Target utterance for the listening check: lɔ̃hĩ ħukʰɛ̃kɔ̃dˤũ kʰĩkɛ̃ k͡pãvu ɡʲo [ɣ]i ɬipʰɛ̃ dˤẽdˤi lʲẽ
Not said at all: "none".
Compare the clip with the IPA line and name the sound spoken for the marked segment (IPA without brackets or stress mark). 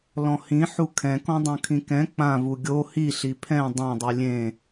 h